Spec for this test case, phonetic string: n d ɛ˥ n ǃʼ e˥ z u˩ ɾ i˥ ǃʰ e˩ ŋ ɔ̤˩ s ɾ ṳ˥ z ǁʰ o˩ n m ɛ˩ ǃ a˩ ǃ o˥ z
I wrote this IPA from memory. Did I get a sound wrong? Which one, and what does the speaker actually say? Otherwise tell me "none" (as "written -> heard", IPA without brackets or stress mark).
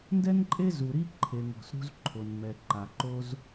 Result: ǁʰ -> ǃʰ